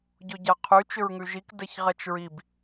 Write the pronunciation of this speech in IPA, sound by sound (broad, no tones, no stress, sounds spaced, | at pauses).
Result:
ɟ o ɟ a qʰ y t͡ʃ ʏ ɹ ŋ ʉ ʒ i k d ɛ ç ʁ ɛ t͡ʃ ɹ i b